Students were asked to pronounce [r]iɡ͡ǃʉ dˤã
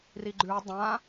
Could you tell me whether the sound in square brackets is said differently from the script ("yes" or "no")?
no